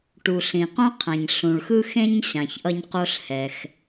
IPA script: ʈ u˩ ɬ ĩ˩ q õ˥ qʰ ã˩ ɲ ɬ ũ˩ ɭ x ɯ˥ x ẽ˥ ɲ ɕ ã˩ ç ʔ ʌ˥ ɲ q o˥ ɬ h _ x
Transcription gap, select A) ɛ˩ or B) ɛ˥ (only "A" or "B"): A